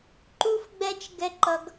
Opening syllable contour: high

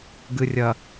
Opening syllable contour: low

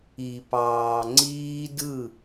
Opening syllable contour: low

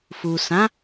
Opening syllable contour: low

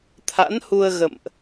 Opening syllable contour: rising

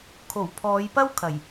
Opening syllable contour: low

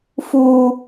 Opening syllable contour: low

